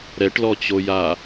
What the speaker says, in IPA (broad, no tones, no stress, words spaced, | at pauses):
ɾɛʈlɔt͡ɕoja